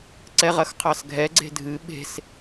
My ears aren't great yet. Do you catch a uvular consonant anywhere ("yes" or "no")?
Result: yes